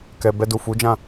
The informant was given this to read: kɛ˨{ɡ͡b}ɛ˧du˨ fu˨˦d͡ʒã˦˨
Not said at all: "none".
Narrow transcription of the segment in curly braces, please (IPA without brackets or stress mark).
b